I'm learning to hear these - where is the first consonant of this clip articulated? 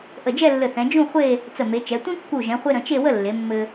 throat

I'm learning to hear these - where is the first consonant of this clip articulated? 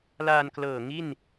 tongue tip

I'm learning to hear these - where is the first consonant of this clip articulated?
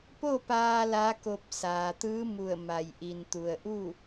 lips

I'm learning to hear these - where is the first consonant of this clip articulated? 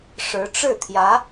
retroflex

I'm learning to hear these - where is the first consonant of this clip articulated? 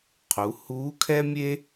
uvula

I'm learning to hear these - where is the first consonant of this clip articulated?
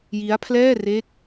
palate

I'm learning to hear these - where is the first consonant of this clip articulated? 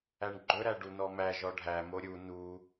retroflex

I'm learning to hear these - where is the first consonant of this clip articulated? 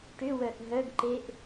retroflex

